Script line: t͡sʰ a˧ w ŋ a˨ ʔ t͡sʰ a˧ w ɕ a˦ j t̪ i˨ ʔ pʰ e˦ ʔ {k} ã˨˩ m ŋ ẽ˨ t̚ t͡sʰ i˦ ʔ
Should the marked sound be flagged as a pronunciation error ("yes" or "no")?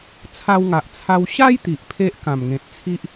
no